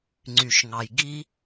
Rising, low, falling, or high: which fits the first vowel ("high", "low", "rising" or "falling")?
low